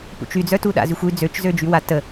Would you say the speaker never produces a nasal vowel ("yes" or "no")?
yes